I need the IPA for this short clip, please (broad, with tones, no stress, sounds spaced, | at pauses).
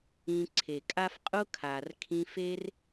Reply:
ĩ˧ ǀʰ e˨ kʼ a˦ f qʼ ʊ˦ kʰ a˨ r kʰ ĩ˧ f e˦ r